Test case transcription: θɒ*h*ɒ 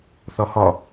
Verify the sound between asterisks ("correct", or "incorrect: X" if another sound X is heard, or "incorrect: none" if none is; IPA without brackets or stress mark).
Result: correct